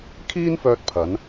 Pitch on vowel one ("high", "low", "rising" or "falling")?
high